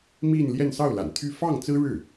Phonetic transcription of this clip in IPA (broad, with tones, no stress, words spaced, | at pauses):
mi˥˧nljɛ˥˧n sɑ˥˩ʊ̯la̰˨˩nt̪ʰy˥˧ fɑ˥˩ŋt͡sɹ̩˥ɻɻ̩˥˩